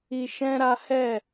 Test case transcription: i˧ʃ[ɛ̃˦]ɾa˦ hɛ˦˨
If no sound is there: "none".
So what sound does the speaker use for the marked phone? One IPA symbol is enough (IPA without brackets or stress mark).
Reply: ɛ̃˦